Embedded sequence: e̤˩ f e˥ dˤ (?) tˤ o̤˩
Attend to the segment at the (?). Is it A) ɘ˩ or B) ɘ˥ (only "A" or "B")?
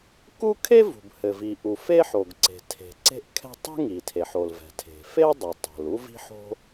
A